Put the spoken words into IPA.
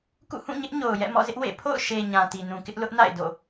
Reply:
k ṵ˦˨ h ũ˦˨ ɲ ɪ˦ ʔ ɲ o˨ ʊ̯ j ɛ̰˦˨ m ɔ̰˦˨ z ɪ˦ ʔ w ḛ˦˨ pʰ o̰˦˨ ʊ̯ ʃ e˨ ɲ ã˨ t i˨ n ũ˨ k ɪ˦ ʔ l ʊ˦ ʔ n a̰˦˨ ɪ̯ d o̰˦˨

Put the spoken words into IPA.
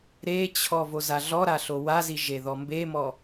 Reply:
ɾ e t͡ɕʰ ɔ v o z a ɮ ɔ ɾ a ɬ o w a z i ʒ e ð ɔ m b e m ɔ

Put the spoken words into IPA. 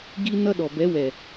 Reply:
ɡ i˧ n ʌ˦ ɗ ɔ˨ b ɛ˨˦ w ɛ˨

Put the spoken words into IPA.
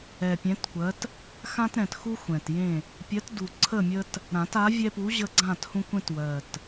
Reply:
ɛ˨˩ pʲ ɛ̃˨˥ t kʷ ɜ˨˥ t | x ã˦ t ɾ ɛ̃˨˩ t x u˦ xʷ ɛ̃˨˩ t j ẽ˥˨ | pʲ ɜ˨˥ t d u˨˩ ǀʰ ə˥˨ mʲ ə˦ t | ɾ ã˨˩˦ t a˨˥ vʲ ɛ˦ p u˨˥ ʑ ə˦ ɡ͡ǀ ã˥˨ t h ũ˦ kʷ ẽ˦ t w ɜ˨˩ t

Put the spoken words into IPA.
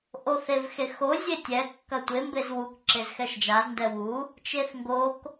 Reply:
ʔ o θ e v x e x o zʲ e tʲ ɛ kː ɐ tʷ e m b e z w u k ǁ e z x ɛ ʃ d͡ʒ a z n d ɛ w u | t͡ʃ e θ ŋ ɡ o k

